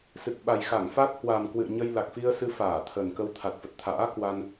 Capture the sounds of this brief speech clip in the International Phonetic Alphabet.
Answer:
s ɨ˨˩ k̚ ɓ a˨˩ j x a˧˩ ŋ f a˦˥ t̚ h w a˨˩ m k w ɨ̰˧˨ ə̯ ɲ ə˧ j l a˨˩ k̚ f i˧ ə̯ s ɨ˧ f aː˧˩ t̪ʰ ə˨˩ n k ə˧ w t̪ʰ a˨˩ t̚ f ə˨˩ t̚ t̪ʰ a̰ː˧˥ k w a˧ n

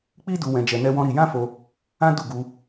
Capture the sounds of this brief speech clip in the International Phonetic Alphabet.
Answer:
k͡p i˦ d u˧ w ɛ̃˧ d͡ʒ ɛ˧ n ɛ˦ w ɔ̃˦ ɾ i˧ j ã˦ f o˧ | ã˦ d u˦˨ ɡ u˧

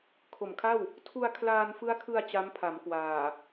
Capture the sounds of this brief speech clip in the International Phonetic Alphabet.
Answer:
kʰ o˨˩ m kʰ a˥˩ w | tʰ u˧ a̯ kʰ l aː˧ n f ɯ˦˥ a̯ kʰ ɯ˧ a̯ t͡ɕ a˦˥ m pʰ a˩˦ m k w aː˨˩

